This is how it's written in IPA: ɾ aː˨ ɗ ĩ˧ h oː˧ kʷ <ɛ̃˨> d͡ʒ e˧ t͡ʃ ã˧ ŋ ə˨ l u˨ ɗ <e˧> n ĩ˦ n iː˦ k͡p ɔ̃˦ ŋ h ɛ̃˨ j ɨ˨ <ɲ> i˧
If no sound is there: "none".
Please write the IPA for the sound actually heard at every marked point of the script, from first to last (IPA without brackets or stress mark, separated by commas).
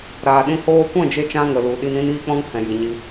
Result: ɛ̃˦˨, i˧, ɲ